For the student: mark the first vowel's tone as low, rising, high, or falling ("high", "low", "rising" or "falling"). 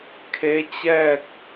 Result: rising